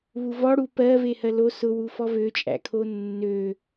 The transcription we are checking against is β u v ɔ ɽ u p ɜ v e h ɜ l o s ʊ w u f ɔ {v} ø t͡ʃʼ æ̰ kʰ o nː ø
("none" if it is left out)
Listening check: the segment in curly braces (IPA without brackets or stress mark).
v